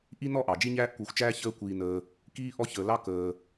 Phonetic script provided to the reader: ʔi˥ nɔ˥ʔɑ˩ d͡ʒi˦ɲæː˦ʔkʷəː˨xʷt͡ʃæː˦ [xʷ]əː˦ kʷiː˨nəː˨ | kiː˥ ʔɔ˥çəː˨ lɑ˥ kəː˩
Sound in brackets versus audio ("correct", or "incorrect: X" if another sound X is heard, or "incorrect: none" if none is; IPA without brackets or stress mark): incorrect: ç